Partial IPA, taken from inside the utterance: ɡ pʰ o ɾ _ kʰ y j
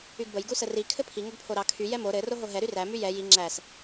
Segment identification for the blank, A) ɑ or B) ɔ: A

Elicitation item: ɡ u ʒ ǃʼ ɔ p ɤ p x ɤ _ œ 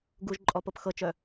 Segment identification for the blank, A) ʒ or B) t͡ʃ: B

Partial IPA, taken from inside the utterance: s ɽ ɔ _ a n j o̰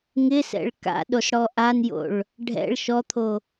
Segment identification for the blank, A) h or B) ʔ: B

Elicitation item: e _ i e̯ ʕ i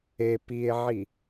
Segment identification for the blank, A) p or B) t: A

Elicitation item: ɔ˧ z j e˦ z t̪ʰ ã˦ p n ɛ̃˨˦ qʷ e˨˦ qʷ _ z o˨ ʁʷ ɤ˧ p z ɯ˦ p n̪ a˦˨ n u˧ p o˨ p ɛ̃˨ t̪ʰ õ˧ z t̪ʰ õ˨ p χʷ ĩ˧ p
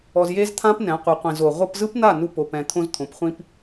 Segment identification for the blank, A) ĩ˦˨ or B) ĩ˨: B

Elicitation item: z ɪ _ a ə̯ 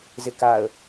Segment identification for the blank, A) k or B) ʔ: A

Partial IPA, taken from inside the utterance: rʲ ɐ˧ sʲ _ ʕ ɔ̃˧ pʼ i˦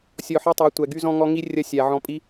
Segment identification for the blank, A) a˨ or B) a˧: A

